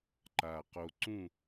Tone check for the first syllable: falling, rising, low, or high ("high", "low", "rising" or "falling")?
low